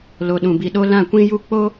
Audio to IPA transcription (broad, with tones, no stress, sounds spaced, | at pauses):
l o˨ ɗ ũ˨ b i˨ ɗ o˧ l ã˦˨ kʷ ĩ˦ j u˦ k͡p o˦